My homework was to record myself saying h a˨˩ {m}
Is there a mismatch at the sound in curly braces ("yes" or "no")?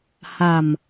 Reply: no